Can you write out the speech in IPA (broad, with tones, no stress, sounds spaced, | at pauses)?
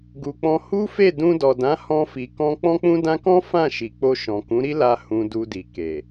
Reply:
ɡ u˨ k͡p ɔ̃˧ h u˦ f e˦˨ d ũ˧ d ɔ˨ d ã˨˦ h ɔ̃˧ f i˨ k ɔ̃˧ k͡p ɔ̃˦ k͡p ũ˦ d ã˦ k ɔ̃˦ f ã˦˨ ʃ i˨ k͡p o˧ ʃ ɔ̃˨ k ũ˨˦ ɾ i˦ l a˧ h ũ˧ d u˧ d i˨ k e˨